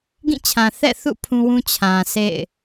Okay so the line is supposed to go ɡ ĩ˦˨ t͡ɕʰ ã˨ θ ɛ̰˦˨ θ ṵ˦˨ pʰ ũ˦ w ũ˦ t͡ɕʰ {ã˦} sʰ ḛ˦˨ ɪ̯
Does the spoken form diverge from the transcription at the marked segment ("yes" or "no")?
yes